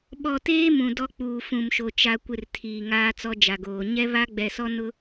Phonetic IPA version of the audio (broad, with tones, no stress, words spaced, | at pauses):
ɓɔ˨teː˦ mũ˨ dɔ˦k͡puː˨fũ˨mʃo˨ t͡ʃa˨kʷɪ˨r tʰiː˨ŋaː˦t͡sɔ˦ d͡ʒa˨ɡoː˨ ɲɛ˦βa˦ɡ͡bɛ˨sɔ˦ nʊ˦